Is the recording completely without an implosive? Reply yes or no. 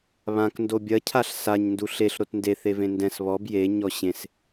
yes